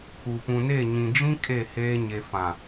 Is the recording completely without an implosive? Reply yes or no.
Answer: yes